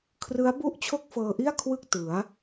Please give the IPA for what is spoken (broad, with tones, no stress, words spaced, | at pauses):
kʰrɯ˦˥a̯ bu˥˩ʔt͡ɕʰo˥˩k̚fɤː˧ʔi˥˩a̯ kʰwɯ˥˩k̚ tɯ˩˦a̯